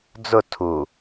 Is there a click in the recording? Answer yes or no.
no